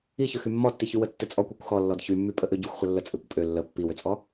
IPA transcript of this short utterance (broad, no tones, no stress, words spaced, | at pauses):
içøxy mːɔtːiçy wətːɘt͡sʼɔkʷikʷ xɔ lːɔdçymːy pʼəʔøɟuxʷχʷə lːət͡sʼɘkʷ pʼø lːə pːiwøt͡sʼɔ